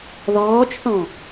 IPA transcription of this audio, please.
ð ɔː t͡ʃ θ ɔ̃

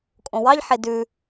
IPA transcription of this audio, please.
kʼ õ w ɑ ʎ ħ e d ʉ

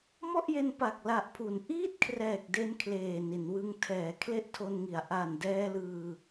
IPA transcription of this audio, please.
m ɔ˥˩ ʔ j e˧ n p a˨˩ k̚ l a˨˩ ʔ pʰ u˩˦ n ʔ iː˥˩ t̚ kʰ r ɛː˨˩ k̚ d e˧ n kʰ l eː˨˩ n i˩˦ n w ɯ˧ ŋ tʰ ɛː˩˦ kʰ l e˥˩ ʔ tʰ o˧ n ŋ i˩˦ a̯ ʔ a˨˩ n d ɛː˧ l ɯː˧

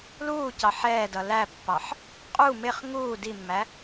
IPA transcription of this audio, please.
l uː c ɑ ħ ɛː d ʌ l æ pː ɑ ħ | qʼ u m ɪ χ ŋ uː d i mː æ

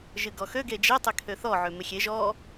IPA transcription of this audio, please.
ʒ ɨ ɡ ɔ x ø ɡ e d͡ʒ e tˤ ɪ kʰ ø θ ɔ ʕ ø m ɪ xʲ e ʒ ɔ

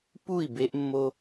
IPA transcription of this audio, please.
p u˦˨ i̯ b e˦ ʔ mː o˦

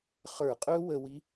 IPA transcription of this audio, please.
χ ə˞˧˩˧ qʼ ɵ˦˥ w ə˧ w i˦˥

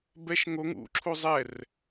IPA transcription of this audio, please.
b ɛ ʃ ŋ o ŋ ṵ ǁʰ u zˤ ɛ r

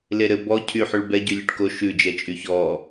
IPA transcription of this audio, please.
l e ɾ ɘ b ɔ cʰ y ħ y ɭ b ɛ ɟ y lʲ ʉ ʈ k o ʃ ʉ d͡ʒ ɛ t͡ʃʼ y ç ɔ

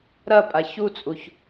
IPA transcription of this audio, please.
ɾ ɐ pʼ a ç u t͡sʼ u ç

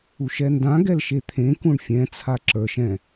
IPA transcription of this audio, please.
u ʃ ɛ n d ã ɡ ɛ l ʃ e t̪ʰ ẽ k ũ ɳ fʲ ɛ̃ t͡sʰ a ǁ ə˞ ʃ ɛ̃

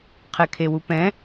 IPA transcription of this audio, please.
qʰ ɛ kʰ e w u p ɛ̃

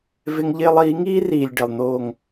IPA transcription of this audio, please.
v ɪ˦ ŋ ʎ ɪː˦ lˠ iː˨˦ ŋ iː˦ r iː˨ lʲ ɖ ɪ˨ lˠ n̪ oː˦˨ ŋ

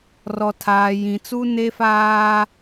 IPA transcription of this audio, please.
r ɔ˨ tʰ aː˨ j ĩ˨ t͡s u˦ n e˦ f aː˦

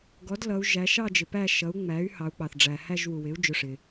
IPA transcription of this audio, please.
ɡ ɔ˩˥ d l ʌ˩˧ u̯ ʒ æ˩˧ ʃ ɑ˥˧ d͡ʒ ɪ˩ p æ˥˧ ʃ ʌ˩˥ u̯ ŋ͡m æ˩˥ y̯ h ɑ˩˧ u̯ k͡p ɑ˩ θ ɖ͡ʐ æ˩ h æ˥˧ ʒ w u˩ w ɪ˩˥ u̯ d͡ʒ ʊ˩˧˩ ʂ ɪ˩

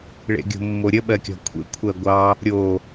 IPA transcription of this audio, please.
ɭ ḛ ɡʲ o̤ mː o ɾʲ ə ɓ ɜ kʲ ɔ̤ kʷʰ ḛ kʷʰ ɜ ɡʷ ɑ | ɾʲ o

